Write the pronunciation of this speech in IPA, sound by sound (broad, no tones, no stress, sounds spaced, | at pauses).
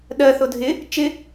ɗ ɜ θ ʊ dʱ ɪ | t͡ʃ ɪ